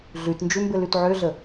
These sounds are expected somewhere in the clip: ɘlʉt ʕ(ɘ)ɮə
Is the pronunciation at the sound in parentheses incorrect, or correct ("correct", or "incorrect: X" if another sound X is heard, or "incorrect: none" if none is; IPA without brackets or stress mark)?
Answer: incorrect: ø